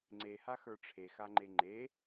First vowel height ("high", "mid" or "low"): mid